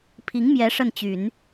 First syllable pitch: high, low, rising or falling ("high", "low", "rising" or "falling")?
rising